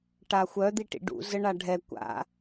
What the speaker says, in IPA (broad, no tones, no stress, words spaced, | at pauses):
ʈaxʷœ d̪iʈḭɖṵ zəɳaɖʱɛ kʷa̰